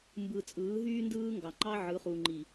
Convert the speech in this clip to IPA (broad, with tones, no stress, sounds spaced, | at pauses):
m b ɯ˨ t͡sʼ ɯː˨˦ ɦ yː˦ n d ɯː˦ ŋ ɡ ɑ˨ ŋ͡ǃ ɑ˦ ʕ ɯ˨˦ χ u˨ ŋ͡ǃ i˨